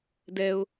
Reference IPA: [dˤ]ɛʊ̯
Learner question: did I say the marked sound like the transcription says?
no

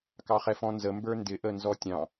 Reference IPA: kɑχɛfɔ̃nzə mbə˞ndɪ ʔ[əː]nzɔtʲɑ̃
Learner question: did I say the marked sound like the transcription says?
no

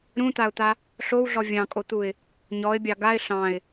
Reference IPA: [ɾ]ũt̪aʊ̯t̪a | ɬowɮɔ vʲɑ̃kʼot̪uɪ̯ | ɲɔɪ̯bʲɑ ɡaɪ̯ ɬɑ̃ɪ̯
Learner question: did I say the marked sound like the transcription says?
yes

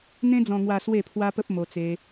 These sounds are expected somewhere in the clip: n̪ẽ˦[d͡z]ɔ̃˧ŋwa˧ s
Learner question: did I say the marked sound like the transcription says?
yes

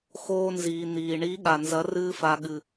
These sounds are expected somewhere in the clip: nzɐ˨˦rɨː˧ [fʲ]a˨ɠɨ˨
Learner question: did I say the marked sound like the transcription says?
no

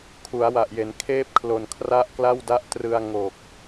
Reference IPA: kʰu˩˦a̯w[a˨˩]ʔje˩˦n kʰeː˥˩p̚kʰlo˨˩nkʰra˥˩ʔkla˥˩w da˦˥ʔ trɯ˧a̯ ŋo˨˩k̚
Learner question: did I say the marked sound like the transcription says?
yes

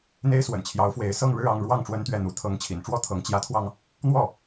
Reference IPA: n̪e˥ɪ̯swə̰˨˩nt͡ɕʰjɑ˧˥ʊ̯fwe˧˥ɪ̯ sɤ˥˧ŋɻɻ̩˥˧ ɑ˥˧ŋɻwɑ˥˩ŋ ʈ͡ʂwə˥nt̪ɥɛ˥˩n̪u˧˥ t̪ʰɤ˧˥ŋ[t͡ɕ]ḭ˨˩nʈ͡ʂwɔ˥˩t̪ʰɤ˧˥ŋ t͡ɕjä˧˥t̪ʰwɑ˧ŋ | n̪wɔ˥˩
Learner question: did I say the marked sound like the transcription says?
no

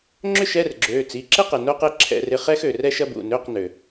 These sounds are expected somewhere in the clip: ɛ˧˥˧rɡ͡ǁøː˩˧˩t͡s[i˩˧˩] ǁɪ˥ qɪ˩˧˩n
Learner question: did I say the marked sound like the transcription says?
yes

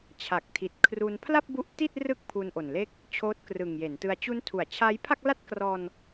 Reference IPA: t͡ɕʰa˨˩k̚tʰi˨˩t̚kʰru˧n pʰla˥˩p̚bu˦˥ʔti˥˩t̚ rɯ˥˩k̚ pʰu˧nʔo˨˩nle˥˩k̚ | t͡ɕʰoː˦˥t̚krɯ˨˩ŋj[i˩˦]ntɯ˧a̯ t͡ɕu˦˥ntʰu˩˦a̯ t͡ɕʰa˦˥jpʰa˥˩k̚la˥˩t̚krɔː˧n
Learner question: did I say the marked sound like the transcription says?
no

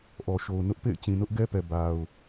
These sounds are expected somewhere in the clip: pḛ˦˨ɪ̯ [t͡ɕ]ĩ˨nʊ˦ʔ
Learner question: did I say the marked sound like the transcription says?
yes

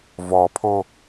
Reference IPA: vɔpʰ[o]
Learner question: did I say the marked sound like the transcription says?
yes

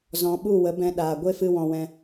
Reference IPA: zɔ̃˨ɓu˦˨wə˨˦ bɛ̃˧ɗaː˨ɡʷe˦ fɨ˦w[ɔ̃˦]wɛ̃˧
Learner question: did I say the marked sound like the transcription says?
no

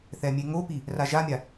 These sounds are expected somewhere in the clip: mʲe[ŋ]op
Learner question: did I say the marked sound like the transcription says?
yes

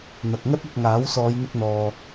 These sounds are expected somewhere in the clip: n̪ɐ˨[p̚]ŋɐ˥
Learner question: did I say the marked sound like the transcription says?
no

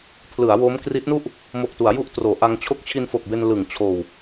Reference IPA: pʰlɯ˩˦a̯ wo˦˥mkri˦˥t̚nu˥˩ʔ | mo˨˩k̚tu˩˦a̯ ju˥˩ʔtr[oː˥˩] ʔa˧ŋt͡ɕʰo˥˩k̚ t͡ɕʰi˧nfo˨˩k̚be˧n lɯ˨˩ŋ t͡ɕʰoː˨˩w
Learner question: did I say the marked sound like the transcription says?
no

